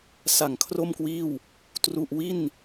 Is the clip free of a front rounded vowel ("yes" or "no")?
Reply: yes